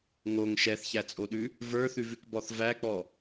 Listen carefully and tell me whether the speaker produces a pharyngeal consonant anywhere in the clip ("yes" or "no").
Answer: no